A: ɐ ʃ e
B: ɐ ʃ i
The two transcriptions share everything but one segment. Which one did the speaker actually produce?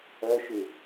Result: A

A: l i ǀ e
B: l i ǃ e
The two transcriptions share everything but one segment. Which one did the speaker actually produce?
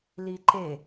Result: B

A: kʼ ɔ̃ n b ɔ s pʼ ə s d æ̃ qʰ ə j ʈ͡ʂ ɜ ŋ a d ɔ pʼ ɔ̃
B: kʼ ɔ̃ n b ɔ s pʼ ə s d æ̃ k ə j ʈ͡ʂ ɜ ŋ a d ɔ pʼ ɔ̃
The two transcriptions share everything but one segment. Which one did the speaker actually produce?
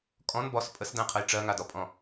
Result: A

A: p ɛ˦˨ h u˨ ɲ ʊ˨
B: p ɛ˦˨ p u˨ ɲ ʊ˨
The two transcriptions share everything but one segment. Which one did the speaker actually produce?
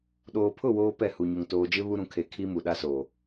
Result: A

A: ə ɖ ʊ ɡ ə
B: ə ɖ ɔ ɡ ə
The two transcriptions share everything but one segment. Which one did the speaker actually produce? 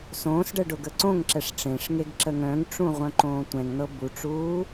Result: A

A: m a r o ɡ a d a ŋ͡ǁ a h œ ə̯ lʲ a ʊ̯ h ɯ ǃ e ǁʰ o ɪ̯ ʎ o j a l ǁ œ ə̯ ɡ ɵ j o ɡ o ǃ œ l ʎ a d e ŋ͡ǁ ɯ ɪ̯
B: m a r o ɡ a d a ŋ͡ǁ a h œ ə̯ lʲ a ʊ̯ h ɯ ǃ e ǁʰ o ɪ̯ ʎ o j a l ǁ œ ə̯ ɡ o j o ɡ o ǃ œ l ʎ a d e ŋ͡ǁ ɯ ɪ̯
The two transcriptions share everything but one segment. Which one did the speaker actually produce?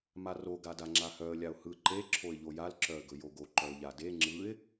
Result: A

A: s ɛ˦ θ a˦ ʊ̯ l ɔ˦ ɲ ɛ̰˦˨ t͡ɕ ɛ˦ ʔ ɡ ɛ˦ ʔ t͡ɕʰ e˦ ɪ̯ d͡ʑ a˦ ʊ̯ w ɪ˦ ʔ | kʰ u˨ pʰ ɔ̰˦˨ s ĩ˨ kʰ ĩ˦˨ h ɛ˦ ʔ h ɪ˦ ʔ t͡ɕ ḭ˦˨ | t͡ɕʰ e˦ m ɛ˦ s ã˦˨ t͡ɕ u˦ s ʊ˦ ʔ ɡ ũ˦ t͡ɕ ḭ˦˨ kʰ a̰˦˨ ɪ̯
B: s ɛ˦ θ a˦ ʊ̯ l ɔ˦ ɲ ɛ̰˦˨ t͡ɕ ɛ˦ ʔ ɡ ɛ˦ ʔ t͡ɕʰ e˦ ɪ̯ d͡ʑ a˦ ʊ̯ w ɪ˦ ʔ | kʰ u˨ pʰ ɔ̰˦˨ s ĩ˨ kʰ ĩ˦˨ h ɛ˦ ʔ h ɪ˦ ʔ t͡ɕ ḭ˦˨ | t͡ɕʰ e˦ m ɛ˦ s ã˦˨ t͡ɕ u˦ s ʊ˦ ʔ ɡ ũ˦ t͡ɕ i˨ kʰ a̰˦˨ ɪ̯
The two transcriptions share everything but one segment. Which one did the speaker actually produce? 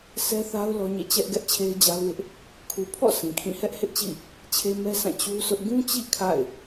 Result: A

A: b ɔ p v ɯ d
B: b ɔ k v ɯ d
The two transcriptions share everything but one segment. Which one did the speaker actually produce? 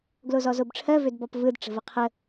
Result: A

